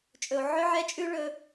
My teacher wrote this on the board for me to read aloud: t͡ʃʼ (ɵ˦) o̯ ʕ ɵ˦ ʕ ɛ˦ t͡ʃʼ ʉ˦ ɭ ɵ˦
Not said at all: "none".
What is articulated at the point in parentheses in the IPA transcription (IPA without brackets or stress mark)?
ɵ˨